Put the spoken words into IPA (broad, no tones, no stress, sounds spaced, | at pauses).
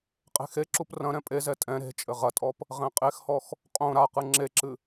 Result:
qʼ e̤ x e ǁ u p r ɐ̃ ɾ ɛ̃ pʼ e z ɛ tʼ ɛ̃ ɾ e̤ t͡ʃʼ ɘ ʁ ɐ tʼ ɔ p | ʁ ɛ̃ qʼ e x h ɔ x | qʼ õ ɾ a q ɨ ŋ͡ǁ e ǁ ɨ